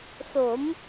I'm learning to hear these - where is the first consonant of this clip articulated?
tongue tip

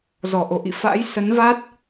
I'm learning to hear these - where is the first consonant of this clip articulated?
tongue tip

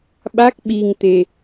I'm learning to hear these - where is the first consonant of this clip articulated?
lips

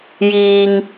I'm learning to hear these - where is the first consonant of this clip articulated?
palate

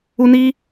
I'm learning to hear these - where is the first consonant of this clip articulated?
tongue tip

